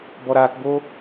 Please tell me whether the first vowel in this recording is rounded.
yes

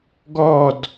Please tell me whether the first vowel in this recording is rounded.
yes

